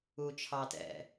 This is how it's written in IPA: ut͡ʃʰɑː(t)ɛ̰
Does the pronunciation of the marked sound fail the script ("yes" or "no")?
no